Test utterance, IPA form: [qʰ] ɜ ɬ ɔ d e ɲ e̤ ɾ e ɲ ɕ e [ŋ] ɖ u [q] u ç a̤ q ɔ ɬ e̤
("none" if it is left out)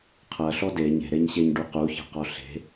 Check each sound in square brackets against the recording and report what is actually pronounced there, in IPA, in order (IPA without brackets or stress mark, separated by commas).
qʰ, ɲ, q